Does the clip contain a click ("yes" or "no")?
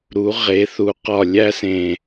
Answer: no